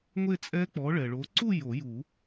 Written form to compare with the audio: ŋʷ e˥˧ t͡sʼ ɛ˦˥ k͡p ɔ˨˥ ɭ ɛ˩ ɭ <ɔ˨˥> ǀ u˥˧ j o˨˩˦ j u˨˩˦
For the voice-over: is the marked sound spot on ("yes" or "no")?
no